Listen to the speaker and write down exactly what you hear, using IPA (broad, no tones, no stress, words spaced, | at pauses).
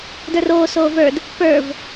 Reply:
də˞roː soːvə˞d | pə˞v